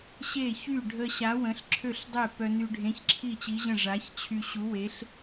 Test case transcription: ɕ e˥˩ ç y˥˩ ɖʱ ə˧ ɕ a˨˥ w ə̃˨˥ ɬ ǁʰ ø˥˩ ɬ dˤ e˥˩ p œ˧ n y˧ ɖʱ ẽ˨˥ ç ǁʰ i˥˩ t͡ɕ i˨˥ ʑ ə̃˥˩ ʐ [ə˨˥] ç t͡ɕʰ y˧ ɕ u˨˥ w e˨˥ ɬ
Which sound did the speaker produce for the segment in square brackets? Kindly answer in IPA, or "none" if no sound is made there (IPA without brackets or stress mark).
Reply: a˨˥